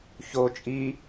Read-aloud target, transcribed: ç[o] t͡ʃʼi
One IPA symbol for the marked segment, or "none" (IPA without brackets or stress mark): o